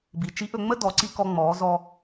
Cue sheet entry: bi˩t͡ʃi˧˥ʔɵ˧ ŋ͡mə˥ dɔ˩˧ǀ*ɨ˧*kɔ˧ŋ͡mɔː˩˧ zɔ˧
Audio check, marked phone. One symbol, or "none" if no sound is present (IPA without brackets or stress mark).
i˧